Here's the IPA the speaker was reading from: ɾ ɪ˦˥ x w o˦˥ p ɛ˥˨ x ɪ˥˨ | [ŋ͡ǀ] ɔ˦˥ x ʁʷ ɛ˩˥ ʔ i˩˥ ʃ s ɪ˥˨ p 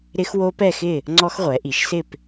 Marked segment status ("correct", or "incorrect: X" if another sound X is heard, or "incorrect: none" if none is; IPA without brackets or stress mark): correct